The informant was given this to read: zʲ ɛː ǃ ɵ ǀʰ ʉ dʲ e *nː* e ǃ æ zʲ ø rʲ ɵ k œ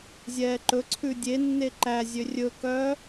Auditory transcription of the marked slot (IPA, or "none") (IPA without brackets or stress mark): nː